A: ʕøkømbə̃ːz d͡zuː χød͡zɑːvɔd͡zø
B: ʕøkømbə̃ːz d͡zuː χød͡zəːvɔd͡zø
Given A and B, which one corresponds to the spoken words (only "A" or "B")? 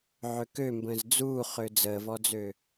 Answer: B